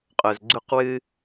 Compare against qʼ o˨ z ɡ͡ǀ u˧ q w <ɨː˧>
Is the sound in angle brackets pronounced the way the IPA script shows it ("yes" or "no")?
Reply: yes